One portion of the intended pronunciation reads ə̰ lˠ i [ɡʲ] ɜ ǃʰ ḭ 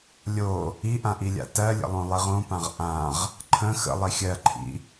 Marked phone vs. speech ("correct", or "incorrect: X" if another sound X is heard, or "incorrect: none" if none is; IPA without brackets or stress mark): incorrect: xʲ